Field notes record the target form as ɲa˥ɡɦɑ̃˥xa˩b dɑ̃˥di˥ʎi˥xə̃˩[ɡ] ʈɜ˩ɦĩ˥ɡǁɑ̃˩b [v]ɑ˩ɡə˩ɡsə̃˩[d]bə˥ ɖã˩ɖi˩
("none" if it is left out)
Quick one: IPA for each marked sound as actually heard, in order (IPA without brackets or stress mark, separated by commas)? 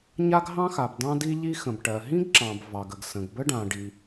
b, v, ɡ